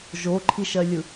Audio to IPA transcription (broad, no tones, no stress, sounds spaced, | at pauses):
ʒ o ǃʰ i ʃ ɜ lʲ ɯ